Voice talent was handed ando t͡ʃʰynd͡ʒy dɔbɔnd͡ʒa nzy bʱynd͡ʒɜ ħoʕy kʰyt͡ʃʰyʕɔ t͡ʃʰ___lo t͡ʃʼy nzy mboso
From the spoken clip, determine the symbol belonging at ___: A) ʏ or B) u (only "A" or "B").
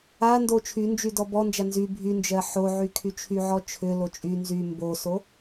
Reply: A